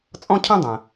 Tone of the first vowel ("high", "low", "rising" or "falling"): high